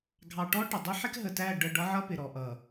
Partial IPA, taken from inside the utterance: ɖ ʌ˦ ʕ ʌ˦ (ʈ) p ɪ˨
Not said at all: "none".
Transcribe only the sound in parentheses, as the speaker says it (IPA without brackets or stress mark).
none